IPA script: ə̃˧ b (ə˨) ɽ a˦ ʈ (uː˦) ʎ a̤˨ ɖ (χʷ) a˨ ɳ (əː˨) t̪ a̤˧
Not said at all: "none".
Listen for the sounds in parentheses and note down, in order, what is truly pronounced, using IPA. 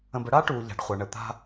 ə˦, uː˨, χʷ, ə˨

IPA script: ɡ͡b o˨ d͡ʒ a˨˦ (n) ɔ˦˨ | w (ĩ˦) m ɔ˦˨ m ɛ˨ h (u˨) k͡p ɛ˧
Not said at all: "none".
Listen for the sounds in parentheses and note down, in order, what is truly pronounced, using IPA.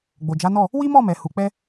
n, i˦, u˨

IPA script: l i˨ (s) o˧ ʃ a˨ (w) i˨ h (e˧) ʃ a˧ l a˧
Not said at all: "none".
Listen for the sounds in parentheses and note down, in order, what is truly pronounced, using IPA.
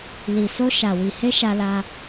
s, w, e˧

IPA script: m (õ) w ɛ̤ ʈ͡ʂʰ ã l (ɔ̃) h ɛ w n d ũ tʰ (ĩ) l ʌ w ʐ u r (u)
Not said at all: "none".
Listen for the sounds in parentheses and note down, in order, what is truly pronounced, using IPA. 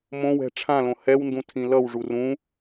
õ, õ, ĩ, ũ

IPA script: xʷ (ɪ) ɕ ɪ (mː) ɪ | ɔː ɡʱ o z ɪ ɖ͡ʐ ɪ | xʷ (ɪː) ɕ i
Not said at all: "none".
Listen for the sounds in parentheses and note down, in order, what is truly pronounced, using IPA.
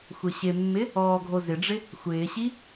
ɪ, mː, ɪː

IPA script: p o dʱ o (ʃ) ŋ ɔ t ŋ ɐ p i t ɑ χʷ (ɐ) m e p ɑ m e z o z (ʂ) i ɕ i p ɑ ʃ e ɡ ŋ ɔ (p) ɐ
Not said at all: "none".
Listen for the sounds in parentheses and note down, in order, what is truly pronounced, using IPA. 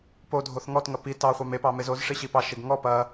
θ, ɑ, ʂ, p

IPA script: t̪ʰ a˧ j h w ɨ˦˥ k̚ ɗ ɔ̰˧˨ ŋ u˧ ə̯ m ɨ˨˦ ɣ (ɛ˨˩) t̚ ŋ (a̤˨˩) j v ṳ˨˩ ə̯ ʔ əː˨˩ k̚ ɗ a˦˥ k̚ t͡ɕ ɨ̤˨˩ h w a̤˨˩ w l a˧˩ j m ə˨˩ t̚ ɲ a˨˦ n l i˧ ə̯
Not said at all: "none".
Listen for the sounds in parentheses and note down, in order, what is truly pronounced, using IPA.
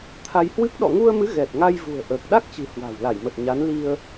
ɛ˨˩, a˧

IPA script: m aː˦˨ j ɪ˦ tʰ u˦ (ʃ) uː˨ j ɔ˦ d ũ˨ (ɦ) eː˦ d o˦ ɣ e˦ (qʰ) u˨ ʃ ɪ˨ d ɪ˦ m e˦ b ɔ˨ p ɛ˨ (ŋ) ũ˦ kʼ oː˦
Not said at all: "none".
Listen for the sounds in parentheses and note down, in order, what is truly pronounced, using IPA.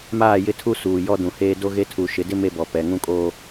s, h, tʰ, ŋ

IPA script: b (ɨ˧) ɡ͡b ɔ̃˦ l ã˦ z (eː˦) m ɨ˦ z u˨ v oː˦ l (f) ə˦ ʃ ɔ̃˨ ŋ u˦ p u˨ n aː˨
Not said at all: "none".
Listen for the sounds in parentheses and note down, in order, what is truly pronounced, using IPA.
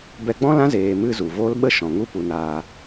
ɛ˧, eː˧, ɓ

